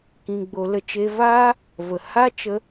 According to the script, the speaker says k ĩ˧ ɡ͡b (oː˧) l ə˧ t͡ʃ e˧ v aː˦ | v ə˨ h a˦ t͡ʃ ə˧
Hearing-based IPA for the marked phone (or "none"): o˧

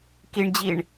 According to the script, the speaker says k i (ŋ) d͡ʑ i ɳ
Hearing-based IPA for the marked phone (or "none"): ɳ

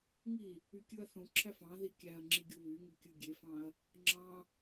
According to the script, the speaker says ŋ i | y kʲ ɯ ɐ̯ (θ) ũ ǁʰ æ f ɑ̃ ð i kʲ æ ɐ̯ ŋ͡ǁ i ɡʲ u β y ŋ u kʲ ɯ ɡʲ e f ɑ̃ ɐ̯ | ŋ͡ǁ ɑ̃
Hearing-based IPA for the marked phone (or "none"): θ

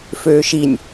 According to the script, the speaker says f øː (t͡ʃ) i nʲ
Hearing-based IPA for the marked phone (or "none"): ʃ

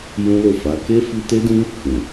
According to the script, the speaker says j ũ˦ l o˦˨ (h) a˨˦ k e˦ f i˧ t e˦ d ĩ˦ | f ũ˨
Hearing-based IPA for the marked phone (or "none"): f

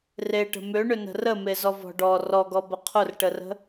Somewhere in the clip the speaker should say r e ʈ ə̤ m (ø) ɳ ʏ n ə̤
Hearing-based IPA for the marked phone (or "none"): ø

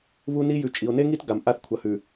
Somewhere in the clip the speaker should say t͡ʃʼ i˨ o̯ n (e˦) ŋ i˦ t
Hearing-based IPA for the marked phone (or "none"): e˦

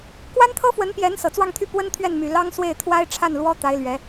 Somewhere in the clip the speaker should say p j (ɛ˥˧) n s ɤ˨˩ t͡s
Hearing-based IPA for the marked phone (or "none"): ɛ˧˥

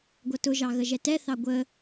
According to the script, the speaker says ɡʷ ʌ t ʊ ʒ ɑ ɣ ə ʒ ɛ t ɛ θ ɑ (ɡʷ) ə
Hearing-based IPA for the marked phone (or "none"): ɡʷ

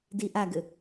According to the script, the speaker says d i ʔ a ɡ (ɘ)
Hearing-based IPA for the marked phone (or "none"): ɘ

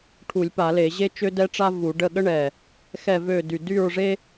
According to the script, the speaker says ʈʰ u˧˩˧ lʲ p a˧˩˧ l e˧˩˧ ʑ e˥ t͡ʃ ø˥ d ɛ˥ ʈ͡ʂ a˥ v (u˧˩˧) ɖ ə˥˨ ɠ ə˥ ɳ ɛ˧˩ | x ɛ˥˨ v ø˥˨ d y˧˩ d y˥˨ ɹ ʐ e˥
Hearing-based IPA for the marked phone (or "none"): u˧˩˧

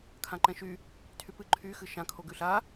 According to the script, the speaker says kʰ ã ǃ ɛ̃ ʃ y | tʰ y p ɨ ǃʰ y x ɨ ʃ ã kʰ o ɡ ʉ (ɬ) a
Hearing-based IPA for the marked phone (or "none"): ɬ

